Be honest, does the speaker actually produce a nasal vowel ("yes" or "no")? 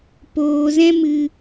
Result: yes